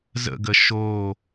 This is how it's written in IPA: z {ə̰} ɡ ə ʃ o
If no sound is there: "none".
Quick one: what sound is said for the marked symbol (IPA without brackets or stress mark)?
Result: ə̰